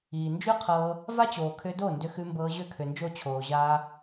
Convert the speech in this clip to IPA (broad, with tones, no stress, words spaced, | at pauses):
iː˨nd͡ʒʉ˦ qʰɤː˧ | va˦t͡ɕoː˨kʰʏ˧do˦˨ ndʏ˧xʉ˧mbɤː˧ ʑʏ˦˨kʰʏ˨nd͡ʒo˦˨ t͡ɕʰoː˨ʑaː˧